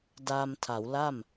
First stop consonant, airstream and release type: plain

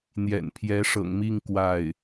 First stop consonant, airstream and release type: aspirated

